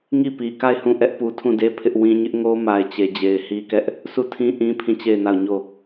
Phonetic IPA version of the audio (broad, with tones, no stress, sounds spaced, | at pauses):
ŋ i˦˨ p i˨ k a˦˨ ɪ̯ h ũ˦˨ ʔ ɛ˦ ʔ p u˨ tʰ ũ˦˨ d e˦ pʰ ɪ˦ ʔ w ĩ˦ ɲ ɪ˦ ʔ ŋ o˦ m a˨ ɪ̯ t͡ɕ e˨ d͡ʑ e˨ ɪ̯ h i˦ k ɛ˦ ʔ | sʰ u˦˨ tʰ ĩ˦ ʔ ĩ˦ pʰ ĩ˦˨ t͡ɕ e˦˨ ɪ̯ n a˦˨ ʊ̯ ɲ o˦˨